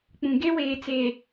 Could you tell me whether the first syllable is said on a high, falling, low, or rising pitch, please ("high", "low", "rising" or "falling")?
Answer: low